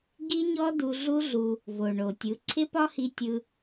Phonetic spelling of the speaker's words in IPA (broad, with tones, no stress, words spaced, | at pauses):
ɡi˦ɲɔ˦ du˧ɮu˦ɮu˧ | vo˨ɳo˨tʲɯ˨˦ ǀʰɪ˦pɒ˦hi˧tʲɯ˧